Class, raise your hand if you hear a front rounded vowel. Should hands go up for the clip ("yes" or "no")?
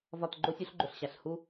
no